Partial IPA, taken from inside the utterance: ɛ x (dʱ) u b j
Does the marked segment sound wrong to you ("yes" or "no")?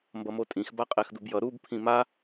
yes